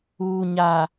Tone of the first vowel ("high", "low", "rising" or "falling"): low